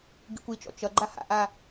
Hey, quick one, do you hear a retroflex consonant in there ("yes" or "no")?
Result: no